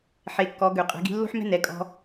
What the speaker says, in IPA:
ħe˩˧kːɔ˩˧ɡø˩ qʼɛ̤˩˧ɡi̤˧ lːo̤˥ħmɛ̤˥ nɛ˩˧kʼɔ̤˧

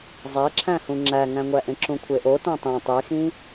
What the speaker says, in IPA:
zˤæǁʰæ̃hũ ŋ͡ǁæŋæ̃ŋʷæʔẽ ǁũkʷʰeʔo tæ̃tˤẽ tˤexĩ

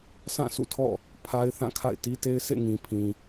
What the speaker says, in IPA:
sã˦˨ sṵ˦˨tʰɔ̰˦˨ | pʰa˦ɪ̯ θã˦˨kʰa̰˦˨ɪ̯ti˦te˦ɪ̯ sʰḛ˦˨ŋĩ˨pʰĩ˨

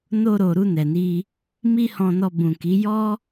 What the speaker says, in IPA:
no˧ɾo˨ ɾu˧nɛ˨ni˧ | mi˦hɔ̃˧nɔ˧ bũ˨ki˨˦ jɔ˦

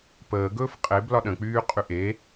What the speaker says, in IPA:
pəːɡɵːf qʼeb lɒɗə̃k͡pyː qʼyʔe

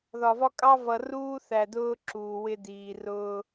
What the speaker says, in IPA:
ðɒ˨vɒ˦kʼɑ˦ vʌ˨ruː˦ θæ˨dʊː˦ ǁuː˨wɪ˦diː˨ rʊː˦

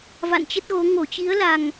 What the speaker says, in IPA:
va̰˧˨nt͡ɕə˦˥t̚ ɣo˨˦ ŋo˧˩t͡ɕi˨˦ə̯la˨˩ŋ

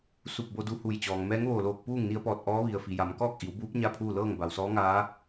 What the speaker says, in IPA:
su˧˩p̚bo˧du˧ hu˧˩jt͡ɕɔː˩ŋ mɛː˧˥ŋʋoː˧˩loː˧˩k̚ puː˥˨ŋni˧ə̯pɔː˧˩t̚ ʔɔː˧˥ʋi˩ə̯fi˩ ja˩˧mkɔː˥˨k̚ʔi˩˧wbuː˧˥p̚ ɲa˥˨pʰuː˥˨lɤː˥˨ŋ ba˩wsɔː˧˥ŋaː˧˥

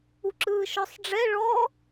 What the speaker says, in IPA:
uǁɯːʃɔsˤɖ͡ʐɛ ɭɔ

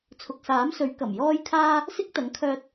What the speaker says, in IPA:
t͡sʰʊ˨k̚saː˨˥msɵ˨˥ɥ kɐ˨˩mjɔː˥jkʰaː˥ | sɪ˥k̚t̪ɐ˨˥ŋkʰœː˧t̚

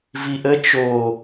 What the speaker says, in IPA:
viʔə t͡ʃo

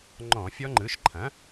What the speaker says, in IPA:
ŋ͡ǃɔ̃˧˩˧fʲɔ˦˥ŋ͡ǃɯ˩˥ʃ ǃʰɐ̃˩˥

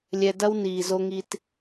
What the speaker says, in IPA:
lʲɛ˧dɐ˦w niː˨zo˧ŋi˧t

